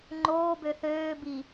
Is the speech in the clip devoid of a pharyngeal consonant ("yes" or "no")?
yes